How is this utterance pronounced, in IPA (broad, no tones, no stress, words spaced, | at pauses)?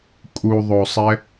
kʼuðˤosˤɛ